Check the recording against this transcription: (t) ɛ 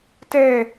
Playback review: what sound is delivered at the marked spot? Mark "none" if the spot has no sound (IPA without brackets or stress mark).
t